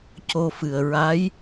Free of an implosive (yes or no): yes